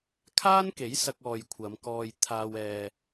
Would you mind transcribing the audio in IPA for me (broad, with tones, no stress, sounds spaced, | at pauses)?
kʰ aː˥ n k e˨˥ j s ɐ˧ k̚ ɔː˨ j kʷʰ ɐ˨˧ m k ɔː˧ j t̪ʰ aː˧ w ɛː˧